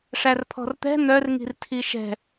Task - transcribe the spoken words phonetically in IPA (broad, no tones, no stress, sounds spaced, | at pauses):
ʂ æ r pʰ ɔ̤ r t̪ ɛ̤ n̪ œ r ŋ i̤ r tʰ i ʃ ɛ̤